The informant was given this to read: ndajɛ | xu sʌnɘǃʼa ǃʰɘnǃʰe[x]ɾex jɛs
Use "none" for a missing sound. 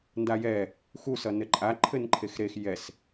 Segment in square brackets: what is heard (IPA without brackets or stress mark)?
x